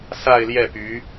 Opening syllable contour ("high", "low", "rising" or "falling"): falling